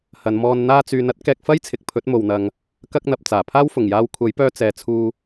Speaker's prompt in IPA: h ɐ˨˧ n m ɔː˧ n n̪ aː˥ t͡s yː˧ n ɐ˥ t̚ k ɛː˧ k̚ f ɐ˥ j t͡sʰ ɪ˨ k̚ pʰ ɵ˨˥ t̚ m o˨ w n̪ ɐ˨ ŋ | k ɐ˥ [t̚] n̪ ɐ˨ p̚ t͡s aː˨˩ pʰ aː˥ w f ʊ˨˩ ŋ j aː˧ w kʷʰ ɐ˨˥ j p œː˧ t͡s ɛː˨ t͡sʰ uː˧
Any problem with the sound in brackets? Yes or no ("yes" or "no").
yes